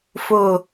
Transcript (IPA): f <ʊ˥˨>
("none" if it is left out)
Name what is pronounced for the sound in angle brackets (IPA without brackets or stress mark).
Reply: ʊ˥˨